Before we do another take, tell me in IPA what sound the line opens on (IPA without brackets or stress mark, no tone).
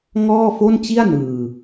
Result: ŋ